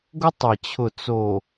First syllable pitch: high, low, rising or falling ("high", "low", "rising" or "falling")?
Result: high